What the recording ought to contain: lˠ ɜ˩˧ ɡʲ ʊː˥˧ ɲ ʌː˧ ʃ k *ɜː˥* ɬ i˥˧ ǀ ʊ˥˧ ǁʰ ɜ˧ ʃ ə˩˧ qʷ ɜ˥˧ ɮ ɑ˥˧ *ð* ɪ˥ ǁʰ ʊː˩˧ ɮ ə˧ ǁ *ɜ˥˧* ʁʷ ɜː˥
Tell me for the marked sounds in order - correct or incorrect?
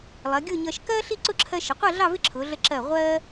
correct, incorrect, incorrect

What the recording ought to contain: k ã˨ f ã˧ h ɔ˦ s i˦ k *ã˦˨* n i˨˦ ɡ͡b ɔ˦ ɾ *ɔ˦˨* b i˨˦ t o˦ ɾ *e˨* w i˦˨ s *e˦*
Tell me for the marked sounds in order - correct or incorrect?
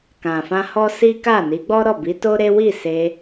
incorrect, correct, incorrect, incorrect

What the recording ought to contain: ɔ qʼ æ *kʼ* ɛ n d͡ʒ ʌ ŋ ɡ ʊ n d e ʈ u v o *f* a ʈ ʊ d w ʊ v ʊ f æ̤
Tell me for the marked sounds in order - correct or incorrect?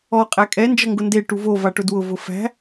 correct, incorrect

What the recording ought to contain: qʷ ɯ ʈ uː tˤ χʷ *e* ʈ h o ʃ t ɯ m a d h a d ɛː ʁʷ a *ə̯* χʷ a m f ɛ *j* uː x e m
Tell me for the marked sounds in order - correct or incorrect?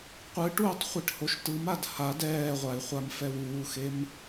incorrect, incorrect, incorrect

